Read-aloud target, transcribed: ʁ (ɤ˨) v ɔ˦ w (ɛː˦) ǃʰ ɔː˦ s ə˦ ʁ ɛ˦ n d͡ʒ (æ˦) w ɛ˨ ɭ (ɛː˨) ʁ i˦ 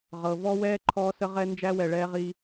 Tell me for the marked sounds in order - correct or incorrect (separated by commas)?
correct, correct, correct, incorrect